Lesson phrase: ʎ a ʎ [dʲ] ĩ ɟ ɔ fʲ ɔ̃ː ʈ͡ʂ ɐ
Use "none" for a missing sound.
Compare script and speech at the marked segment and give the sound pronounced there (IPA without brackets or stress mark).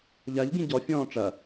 ɡ